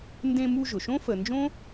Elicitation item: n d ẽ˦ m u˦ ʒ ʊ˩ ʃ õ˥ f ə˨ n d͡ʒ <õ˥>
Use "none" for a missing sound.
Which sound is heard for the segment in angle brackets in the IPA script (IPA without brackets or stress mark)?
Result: õ˥